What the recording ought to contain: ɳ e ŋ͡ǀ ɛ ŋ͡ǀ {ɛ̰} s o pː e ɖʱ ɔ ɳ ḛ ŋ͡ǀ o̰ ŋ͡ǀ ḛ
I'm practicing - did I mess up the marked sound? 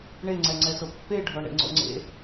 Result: yes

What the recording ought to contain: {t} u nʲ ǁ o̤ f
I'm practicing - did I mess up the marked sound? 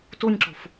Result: no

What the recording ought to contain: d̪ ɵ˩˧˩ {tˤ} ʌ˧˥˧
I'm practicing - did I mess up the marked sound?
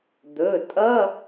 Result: yes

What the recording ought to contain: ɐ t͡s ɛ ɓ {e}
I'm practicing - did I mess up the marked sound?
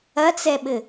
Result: yes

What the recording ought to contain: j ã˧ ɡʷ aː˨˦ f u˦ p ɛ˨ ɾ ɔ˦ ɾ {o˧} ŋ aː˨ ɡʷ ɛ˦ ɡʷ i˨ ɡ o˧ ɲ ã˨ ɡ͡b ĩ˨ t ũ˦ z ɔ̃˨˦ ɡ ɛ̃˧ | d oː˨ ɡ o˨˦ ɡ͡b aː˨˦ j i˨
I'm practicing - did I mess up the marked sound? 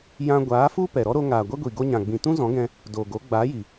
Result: no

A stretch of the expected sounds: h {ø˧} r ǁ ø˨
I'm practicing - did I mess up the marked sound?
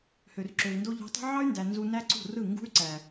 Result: yes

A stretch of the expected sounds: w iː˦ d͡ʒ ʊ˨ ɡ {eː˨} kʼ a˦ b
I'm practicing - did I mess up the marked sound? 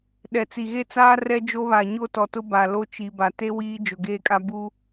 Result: yes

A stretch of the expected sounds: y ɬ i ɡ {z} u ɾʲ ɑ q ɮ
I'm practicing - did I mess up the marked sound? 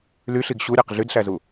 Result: yes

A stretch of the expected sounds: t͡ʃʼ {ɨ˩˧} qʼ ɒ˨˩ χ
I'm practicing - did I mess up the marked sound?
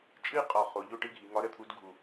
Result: yes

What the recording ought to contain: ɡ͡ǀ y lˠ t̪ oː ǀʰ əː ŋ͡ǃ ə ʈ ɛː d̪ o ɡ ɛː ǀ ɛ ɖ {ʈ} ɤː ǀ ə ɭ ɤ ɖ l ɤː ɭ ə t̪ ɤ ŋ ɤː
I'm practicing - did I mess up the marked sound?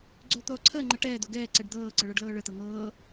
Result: yes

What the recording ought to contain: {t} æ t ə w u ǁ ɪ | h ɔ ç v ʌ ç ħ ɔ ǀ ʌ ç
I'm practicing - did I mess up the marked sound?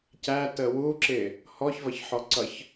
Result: yes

